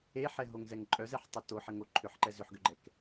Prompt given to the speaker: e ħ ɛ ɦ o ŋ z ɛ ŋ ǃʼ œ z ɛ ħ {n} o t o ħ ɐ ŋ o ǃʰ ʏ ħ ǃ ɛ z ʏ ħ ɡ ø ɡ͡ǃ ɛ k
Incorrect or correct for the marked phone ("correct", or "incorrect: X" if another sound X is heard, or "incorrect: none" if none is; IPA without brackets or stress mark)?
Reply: incorrect: tˤ